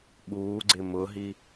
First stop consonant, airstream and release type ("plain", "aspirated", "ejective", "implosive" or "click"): implosive